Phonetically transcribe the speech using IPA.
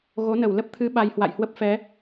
ɣ o˨˦ n ə˧˩ w l ə˦˥ p̚ t̪ʰ ɨ˨˦ ɓ a˧ j h w a̰˧˨ j h w ə˦˥ p̚ f ɛ˨˦

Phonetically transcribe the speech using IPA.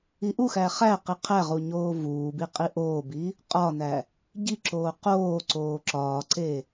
i ʔ u x æ χ æ q i qʰ æ ʁ u ɲ oː v uː b i qʼ i ʔ oː b i | qʼ ɒ n æ | ɟ i ǁ oː q oː ǀ oː ǁ ɒː ǀ e

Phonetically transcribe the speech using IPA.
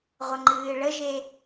ʁʷ ə ŋ͡ǃ ɨː ɭ ə ʒ e

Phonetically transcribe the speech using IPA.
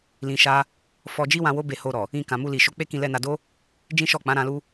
l ĩ˧ ʃ a˦ | f ɔ˧ d͡ʒ i˦ w ã˧ w o˦ b e˧ h o˧ ɾ ɔ˨ | ĩ˧ k ã˨ m u˧ l i˨ ʃ o˨˦ k͡p e˦ k ĩ˧ l ɛ˧ n a˧ d o˦ | d͡ʒ ĩ˦ ʃ ɔ˦˨ k͡p ã˨˦ ɾ ã˧ l u˦

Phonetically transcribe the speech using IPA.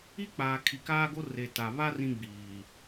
i˦ k͡p aː˨ kʰ i˨ k aː˦ ɡ o˦ r e˨ t a˨ β a˦ r ĩ˦ ɡ͡b iː˨

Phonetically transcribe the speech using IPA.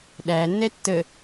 ɗ æ nː ɛ tː ə

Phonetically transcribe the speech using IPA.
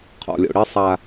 qʰ ɔ̰˨ lʲ o̰˨ ɽ i˦ sˤ a˦

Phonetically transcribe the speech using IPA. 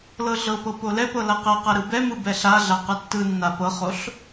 l ɤ ɮ ɤ p ɤ p o l ɛ p ɤ l a q e q ɛ ɾ ɯ b ɛ m ɯ b ɛ ɬ a ɮ a q ɯ tː ɯ nː a p ɤ χ o ɬ

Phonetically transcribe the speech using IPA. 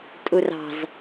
tʼ u r ɑ̤ z

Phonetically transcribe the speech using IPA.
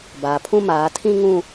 b aː˨ pʰ ũ˦ m aː˨˦ tʰ ĩ˦ ŋ ũ˦

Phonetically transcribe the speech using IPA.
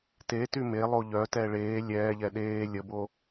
t e t y m e lˠ o ʎ œ t ɛ ɭ eː lʲ ɛː ʎ ɛ ɗ eː lʲ ə b oː

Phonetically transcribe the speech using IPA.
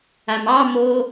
a m ɑ m o

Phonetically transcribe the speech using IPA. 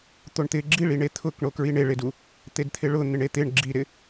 t̪ o ɳ t̪ ɪ ɡ͡ǁ i ɭ i ɳ e t̪ʰ ʊ k ɳ o k ɹ i ɳ e ɭ ɪ d u | t̪ e d t̪ʰ ɪ ɭ ʊ n̪ ɪ ɳ e t̪ ɪ ɳ ɡ͡ǁ i ɾ ɪ

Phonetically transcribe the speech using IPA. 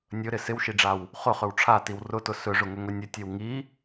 nʲ ɵ ɾ ɪ s ɪ w ʃ i ɖ͡ʐ a w | χ ʊ χ ɵ w ʈ͡ʂʰ a t i w r ʊ t ʊ s ɵ ʐ ʊ ŋ ɵ ŋ ɵ nʲ ɵ tʲ e w ŋ i

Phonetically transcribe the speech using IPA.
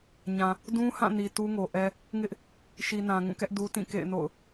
ɲ ã˨ | d ũ˦ h ã˦˨ n i˨ t u˦ ŋ o˨ ʔ ɛ˦ | ŋ ɪ˦ ʔ | ʃ i˨ n ã˨ ŋ ũ˦˨ k ɛ˦ ʔ d u˦ t ĩ˦˨ k ḛ˦˨ ɪ̯ n o̰˦˨ ʊ̯

